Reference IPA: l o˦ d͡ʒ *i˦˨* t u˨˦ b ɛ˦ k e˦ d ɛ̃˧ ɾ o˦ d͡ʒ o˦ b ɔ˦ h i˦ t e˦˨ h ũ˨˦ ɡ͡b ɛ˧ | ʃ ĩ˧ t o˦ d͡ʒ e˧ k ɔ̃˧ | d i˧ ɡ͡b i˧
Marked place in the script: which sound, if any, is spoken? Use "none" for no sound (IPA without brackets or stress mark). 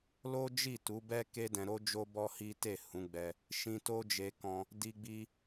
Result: i˦˨